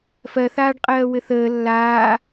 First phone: f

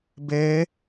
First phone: b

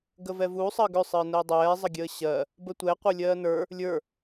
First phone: ɡ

